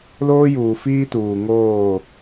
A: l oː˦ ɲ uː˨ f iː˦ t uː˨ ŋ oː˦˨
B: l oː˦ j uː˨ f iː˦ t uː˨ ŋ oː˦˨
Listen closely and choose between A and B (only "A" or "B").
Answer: B